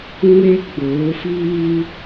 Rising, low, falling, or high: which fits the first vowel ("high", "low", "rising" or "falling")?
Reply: high